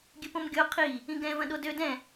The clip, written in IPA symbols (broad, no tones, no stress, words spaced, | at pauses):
ɡʲɨpõmɡʲo qʰi | ĩɡɛ̃ vɐ̃ɗodø dɛ̃